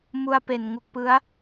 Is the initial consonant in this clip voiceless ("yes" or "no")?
no